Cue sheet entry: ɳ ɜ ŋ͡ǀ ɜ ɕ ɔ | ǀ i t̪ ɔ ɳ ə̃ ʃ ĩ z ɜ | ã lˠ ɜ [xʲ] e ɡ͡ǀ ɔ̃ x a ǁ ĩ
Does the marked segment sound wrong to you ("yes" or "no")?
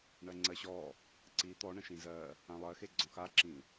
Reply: yes